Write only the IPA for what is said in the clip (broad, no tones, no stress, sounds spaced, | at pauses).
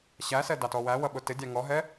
ɕ æ s ɛ d ɑ t ɔ w æ w ʌ ɓ ʊ t ɪ dʲ ɑ ŋ ɔ ɦ ɛ